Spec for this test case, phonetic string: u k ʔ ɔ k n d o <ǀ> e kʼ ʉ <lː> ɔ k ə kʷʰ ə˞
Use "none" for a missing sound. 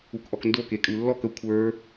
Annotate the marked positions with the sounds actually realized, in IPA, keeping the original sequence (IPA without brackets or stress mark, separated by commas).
k, lː